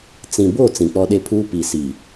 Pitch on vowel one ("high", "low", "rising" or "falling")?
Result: low